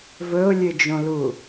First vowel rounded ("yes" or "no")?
yes